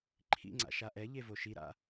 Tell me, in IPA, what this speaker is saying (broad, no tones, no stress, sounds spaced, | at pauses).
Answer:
ǃʰ ḭ ŋ͡ǀ a̰ ʃ a ʔ ɛ ʎ e v o ʃ i ɾ a̰